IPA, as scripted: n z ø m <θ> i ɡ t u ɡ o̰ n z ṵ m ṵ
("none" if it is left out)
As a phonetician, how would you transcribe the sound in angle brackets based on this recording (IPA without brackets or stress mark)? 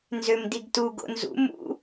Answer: d